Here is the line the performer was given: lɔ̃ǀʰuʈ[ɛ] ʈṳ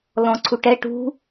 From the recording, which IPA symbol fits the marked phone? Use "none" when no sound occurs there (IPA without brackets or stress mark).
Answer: ɛ